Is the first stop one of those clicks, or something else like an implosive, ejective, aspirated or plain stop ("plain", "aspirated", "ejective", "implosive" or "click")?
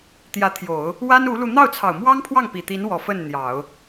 plain